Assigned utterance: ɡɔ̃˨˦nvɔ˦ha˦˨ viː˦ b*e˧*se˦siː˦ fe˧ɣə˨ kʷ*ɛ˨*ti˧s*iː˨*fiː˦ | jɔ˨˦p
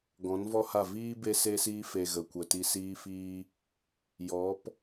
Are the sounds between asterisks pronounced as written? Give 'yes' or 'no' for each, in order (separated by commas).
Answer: no, no, no